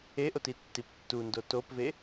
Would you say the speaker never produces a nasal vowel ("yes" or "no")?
yes